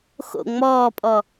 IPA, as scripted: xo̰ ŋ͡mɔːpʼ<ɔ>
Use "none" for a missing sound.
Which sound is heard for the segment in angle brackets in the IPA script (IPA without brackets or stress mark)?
ɔ